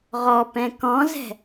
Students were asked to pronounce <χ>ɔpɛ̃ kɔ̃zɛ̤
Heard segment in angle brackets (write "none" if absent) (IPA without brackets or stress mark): ʁ